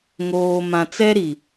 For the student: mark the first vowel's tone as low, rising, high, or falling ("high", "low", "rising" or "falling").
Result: low